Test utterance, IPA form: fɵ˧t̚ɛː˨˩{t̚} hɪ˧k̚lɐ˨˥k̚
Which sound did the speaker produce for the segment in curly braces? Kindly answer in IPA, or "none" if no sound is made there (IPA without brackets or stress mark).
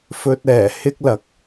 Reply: none